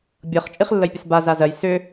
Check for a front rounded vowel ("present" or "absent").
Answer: present